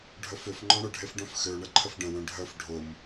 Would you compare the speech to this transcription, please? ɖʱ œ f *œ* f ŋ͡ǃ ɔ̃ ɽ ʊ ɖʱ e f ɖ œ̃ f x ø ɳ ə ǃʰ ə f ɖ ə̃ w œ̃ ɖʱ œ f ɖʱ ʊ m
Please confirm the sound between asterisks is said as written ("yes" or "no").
no